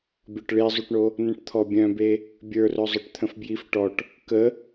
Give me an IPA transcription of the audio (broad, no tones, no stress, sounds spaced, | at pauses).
bʲ ɔ ʈ ɭ i zˤ u ʈ ɳ o | n ə̃ ʈ t̪ʰ ɔ bʲ œ̃ b e | bʲ ə˞ r œ zˤ œ ʈ t̪ʰ ə̃ f b j i f ʈ ɔ ʈ | k ə